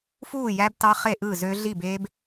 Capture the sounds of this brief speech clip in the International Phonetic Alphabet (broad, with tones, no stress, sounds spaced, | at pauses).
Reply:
f uː˥˨ j æ˦˥ b t ɑ˦˥ χ e˥˨ ʔ ɯ˥˨ z ø˦˥ ɮ i˥˨ b e˦˥ b